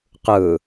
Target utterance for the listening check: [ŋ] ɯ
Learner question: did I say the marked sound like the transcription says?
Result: no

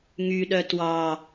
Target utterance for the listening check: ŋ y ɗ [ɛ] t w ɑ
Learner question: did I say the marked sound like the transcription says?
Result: no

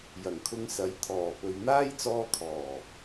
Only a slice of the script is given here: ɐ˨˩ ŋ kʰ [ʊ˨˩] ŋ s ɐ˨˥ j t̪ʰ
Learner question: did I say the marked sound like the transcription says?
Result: no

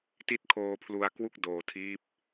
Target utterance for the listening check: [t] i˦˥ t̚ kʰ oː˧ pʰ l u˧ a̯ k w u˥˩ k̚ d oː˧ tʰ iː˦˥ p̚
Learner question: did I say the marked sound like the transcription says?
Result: yes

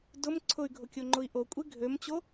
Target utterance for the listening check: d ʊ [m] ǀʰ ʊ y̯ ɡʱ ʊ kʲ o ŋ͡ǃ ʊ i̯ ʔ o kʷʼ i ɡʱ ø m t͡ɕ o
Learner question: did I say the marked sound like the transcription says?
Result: yes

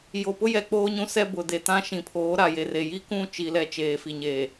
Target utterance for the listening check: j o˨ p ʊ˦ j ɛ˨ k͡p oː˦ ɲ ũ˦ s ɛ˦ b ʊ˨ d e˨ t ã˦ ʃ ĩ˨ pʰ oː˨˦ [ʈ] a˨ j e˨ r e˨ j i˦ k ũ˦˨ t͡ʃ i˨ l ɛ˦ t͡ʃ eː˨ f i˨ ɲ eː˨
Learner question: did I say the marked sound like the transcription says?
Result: no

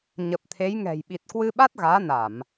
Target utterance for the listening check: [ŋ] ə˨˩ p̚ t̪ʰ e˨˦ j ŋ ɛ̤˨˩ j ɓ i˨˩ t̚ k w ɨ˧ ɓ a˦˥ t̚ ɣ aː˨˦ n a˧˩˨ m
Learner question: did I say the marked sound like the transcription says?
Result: no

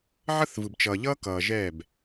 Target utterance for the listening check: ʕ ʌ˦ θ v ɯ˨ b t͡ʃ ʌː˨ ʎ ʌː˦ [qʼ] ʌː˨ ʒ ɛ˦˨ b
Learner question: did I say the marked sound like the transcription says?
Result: no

